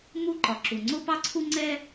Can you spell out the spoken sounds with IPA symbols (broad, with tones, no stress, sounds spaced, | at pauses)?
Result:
m u˥ ǃ ɒ˩ ǁ u˩ ŋ͡ǀ o˥ p ɑ˥ ǀʰ u˥ ŋ͡ǀ ɛ˥